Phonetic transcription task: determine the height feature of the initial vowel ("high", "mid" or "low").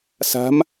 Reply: low